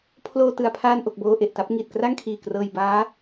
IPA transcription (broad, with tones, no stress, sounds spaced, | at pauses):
pʰ l oː˧ t ɯ˨˩ a̯ pʰ aː˧ n ʔ o˨˩ k̚ b oː˧ ʔ e˨˩ ʔ t a˦˥ p̚ ŋ iː˨˩ t̚ k r a˥˩ ŋ kʰ iː˨˩ k r ɤː˧ j b aː˦˥